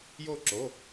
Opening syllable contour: falling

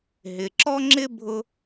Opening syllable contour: low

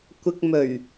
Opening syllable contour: low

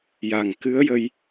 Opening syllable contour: low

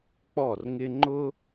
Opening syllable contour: falling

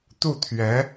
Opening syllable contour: falling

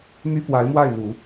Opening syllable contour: high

